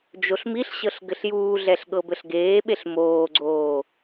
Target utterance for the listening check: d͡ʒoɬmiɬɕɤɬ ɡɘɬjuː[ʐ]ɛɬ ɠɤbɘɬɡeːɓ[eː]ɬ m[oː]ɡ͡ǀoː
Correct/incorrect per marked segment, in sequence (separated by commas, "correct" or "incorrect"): incorrect, incorrect, correct